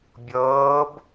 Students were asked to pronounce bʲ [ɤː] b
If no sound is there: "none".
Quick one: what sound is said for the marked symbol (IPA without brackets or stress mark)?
ɤː